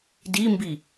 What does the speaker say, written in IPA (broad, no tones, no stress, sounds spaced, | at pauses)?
d i m b i